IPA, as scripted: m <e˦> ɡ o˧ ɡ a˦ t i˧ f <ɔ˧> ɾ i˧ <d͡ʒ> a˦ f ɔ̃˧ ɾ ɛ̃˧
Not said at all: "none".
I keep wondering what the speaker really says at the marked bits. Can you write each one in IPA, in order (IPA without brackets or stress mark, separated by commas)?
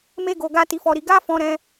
e˦, ɔ˧, ɡ